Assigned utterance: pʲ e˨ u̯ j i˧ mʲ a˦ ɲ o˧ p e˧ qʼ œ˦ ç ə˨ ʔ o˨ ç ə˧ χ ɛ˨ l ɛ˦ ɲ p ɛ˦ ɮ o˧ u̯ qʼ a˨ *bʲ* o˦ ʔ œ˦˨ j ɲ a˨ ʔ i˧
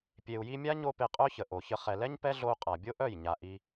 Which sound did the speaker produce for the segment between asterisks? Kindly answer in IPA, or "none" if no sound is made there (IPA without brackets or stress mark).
bʲ